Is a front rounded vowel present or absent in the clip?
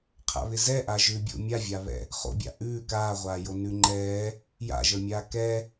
absent